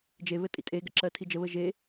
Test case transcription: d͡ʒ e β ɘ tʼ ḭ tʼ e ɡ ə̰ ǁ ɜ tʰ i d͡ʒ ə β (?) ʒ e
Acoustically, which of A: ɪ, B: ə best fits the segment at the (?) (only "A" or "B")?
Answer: B